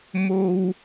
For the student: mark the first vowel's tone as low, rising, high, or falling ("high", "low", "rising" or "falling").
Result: high